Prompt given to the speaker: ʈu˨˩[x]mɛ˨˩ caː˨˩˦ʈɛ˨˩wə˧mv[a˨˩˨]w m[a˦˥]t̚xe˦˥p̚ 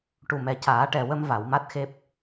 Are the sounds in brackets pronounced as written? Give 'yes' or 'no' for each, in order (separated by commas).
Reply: no, yes, yes